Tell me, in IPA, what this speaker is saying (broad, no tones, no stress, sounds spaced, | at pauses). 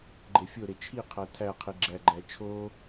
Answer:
ɡ͡ǃ e fʲ o ɾ e t͡ʃʰ i qʰ æ tʰ æ qʰ i ɡ͡ǁ æ ɡ͡ǃ æ t͡ʃʰ o